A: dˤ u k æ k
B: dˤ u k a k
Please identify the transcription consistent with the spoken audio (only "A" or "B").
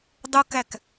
A